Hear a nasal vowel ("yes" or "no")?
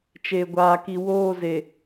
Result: no